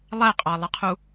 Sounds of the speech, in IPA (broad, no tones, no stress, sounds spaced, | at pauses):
lˠ æ qʼ ɑ lˠ ə qʰ u